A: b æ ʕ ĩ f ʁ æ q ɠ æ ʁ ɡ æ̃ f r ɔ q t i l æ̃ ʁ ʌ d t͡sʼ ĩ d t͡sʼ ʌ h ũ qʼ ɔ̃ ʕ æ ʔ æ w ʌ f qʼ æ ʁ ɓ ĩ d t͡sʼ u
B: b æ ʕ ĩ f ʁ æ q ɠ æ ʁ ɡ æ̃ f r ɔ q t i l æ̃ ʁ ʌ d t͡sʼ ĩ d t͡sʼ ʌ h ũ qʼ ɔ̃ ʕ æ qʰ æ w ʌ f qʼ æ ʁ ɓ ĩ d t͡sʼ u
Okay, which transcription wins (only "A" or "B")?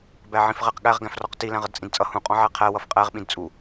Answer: B